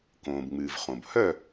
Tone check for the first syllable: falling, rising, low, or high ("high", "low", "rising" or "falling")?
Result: low